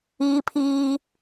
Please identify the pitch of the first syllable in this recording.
high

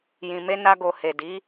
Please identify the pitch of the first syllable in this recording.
low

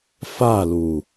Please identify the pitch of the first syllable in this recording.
falling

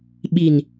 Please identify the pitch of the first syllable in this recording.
low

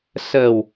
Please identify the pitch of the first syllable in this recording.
low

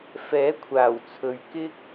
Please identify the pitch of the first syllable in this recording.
rising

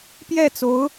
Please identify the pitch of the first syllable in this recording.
falling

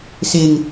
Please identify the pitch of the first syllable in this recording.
low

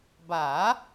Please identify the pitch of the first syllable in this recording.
rising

